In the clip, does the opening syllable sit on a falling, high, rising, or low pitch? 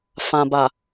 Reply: low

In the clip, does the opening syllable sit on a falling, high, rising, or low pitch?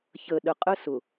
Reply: low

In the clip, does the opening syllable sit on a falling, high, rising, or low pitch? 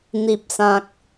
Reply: low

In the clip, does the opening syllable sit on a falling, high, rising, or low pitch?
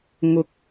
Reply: rising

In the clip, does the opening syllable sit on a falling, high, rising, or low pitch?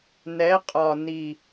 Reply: rising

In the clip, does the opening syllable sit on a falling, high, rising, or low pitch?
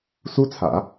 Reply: high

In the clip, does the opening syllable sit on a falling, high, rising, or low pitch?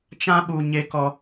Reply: high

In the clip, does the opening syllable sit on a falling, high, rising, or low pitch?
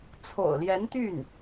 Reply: low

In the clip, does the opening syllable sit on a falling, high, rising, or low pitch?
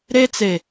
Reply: high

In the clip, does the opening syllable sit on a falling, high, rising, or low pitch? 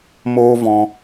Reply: high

